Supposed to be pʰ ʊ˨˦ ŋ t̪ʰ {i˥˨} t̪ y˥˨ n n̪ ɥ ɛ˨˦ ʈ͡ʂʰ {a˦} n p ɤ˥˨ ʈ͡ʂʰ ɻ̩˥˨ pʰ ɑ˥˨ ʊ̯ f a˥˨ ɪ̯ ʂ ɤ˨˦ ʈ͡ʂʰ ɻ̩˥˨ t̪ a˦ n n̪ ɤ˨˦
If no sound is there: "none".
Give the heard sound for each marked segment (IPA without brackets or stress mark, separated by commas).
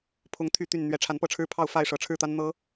y˥˨, a˨˦